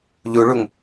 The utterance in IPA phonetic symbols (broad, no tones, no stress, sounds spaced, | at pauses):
ʎ u ɭ u ŋ